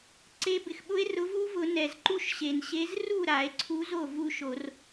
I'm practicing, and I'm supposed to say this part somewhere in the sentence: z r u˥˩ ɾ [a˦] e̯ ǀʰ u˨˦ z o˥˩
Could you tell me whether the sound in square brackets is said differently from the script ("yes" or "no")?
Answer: yes